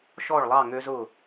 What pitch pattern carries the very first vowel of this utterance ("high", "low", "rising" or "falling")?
falling